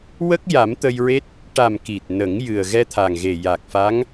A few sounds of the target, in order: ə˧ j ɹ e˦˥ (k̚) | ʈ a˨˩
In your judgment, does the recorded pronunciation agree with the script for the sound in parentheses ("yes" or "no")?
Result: no